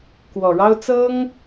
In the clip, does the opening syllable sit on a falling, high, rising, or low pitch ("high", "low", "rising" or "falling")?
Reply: low